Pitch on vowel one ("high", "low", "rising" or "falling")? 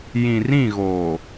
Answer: low